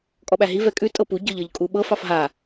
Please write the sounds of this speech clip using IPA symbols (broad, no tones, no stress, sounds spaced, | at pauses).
kʼ ɔ ɓ æ ɦ i v ɛ kʼ ʉ tʼ ɤ p u ɟ ɤ ʎ ɤ ʎ kʼ u ɓ ɤ f ɑ f ɦ a